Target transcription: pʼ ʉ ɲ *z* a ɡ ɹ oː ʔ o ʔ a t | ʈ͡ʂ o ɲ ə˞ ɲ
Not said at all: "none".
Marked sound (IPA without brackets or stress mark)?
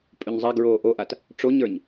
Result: zˤ